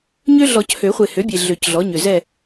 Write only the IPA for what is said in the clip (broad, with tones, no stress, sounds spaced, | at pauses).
ɲ ø˦ ɮ ɔ˨˩˦ c h ø˨˩˦ χʷ e˨ h ø˩˥ bʲ e˨ ɮ ø˨˩˦ c ɮ ɔ˩˥ ɲ ø˨ z ɛ˦˨